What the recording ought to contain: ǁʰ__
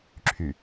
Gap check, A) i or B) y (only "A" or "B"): B